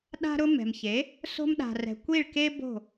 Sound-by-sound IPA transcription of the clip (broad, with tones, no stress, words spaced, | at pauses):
ɗa̤˧ɾʊ˧ mɛ̤˨mçe˨˦ | so̤˧mɗa̤˨rɛ̤˨ kʷi˦˨ɭke˦ bo̤˦˨